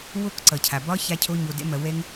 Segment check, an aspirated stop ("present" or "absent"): present